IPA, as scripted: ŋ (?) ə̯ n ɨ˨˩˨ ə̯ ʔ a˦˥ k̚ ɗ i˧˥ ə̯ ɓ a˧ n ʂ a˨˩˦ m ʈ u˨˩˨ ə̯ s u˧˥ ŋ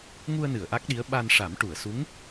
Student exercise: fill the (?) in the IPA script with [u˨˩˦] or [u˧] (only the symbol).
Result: u˧